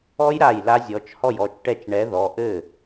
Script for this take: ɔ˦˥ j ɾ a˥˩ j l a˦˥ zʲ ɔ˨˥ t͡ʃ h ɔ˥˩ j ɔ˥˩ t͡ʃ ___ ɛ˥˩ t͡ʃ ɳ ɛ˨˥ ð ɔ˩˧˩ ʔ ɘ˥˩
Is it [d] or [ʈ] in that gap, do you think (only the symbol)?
ʈ